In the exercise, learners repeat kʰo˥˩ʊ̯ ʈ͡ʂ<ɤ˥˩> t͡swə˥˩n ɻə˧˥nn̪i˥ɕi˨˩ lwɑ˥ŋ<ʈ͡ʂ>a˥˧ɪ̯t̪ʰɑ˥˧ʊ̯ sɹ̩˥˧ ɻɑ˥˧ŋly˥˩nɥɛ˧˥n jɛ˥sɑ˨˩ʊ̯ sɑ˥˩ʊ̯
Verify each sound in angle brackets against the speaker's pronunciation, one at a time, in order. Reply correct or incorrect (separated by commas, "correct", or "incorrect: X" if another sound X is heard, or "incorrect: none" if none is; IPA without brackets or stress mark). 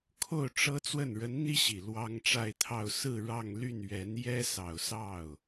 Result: incorrect: ɤ˥, correct